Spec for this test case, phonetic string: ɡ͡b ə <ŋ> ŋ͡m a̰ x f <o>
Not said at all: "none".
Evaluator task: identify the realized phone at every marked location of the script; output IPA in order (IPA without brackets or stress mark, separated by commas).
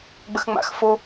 x, o